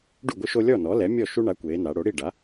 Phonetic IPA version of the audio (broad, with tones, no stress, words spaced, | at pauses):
ɖu˥˩ɡʷɯ˦ʃo˦ lʲɔ˥˩nɔ˩˥lɛ˩˥ mʲɔ˥˩ ʃu˦ɳa˩˥ kʷeː˩˧na˩˧ ɽo˩˥ɽi˥˩ ɖa˩˥